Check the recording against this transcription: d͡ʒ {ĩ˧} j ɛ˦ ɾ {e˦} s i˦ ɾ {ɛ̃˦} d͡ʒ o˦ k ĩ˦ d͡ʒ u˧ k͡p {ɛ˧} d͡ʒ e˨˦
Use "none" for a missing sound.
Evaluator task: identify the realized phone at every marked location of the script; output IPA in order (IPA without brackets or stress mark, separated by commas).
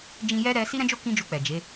ĩ˧, ɛ˦, ɛ̃˦, ɛ˨